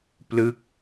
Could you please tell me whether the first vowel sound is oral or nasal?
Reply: oral